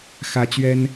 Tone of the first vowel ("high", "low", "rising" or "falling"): high